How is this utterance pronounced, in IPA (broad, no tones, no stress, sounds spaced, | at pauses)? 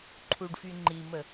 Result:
ǃʰ u ɖ f y ŋ͡ǃ i m ə